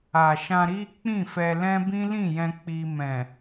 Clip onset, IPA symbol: a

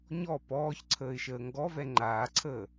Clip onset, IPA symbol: ɲ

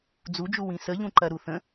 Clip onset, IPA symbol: d͡z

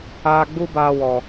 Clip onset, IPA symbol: aː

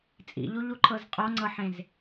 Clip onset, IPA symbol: t͡sʼ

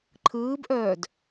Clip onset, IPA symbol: ǃʰ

